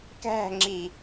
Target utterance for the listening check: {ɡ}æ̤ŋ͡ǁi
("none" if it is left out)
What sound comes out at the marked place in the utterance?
k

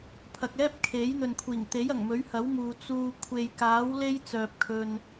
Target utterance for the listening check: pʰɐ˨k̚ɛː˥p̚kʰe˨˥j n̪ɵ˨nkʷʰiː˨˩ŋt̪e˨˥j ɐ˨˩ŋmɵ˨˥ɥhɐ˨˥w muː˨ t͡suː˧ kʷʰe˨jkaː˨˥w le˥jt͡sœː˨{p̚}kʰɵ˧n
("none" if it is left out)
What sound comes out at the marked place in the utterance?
p̚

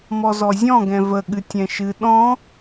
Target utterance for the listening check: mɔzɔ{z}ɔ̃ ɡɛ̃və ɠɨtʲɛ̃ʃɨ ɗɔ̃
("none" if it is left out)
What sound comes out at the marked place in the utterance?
zʲ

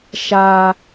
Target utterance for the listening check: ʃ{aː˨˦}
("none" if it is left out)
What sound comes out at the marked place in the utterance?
aː˦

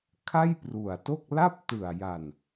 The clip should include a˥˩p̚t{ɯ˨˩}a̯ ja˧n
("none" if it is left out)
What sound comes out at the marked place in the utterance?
ɯ˨˩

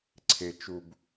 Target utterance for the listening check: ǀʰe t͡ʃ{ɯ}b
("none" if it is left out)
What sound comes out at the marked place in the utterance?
u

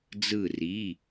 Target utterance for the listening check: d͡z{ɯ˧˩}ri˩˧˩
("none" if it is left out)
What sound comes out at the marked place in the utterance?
ɯ˧˩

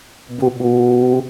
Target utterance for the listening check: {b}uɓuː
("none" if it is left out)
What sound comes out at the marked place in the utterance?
b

